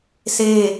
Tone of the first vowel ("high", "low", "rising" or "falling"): falling